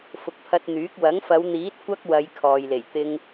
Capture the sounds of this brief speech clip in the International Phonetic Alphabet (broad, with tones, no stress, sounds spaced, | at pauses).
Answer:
f ʊ˨ k̚ pʰ ɐ˧ t̚ n̪ yː˨˥ k̚ w ɐ˨˥ ŋ f ɐ˨˧ w n̪ iː˨˥ t̚ kʷ ɐ˥ k̚ w ɐ˨˧ j kʰ ɔː˨ j l e˨˩ j t̪ ɪ˧ ŋ